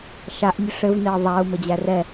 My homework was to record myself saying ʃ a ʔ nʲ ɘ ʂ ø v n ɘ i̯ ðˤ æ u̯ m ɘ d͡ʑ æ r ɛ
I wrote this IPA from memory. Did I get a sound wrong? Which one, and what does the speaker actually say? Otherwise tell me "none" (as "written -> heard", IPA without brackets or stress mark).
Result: ø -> ɘ